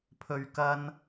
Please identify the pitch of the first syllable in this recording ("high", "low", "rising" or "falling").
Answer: low